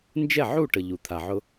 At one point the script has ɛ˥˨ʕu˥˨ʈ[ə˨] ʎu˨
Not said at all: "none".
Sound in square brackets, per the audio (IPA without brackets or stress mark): ə˨